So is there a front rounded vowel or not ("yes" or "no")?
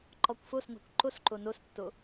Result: no